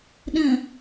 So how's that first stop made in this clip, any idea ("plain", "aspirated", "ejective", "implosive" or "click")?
implosive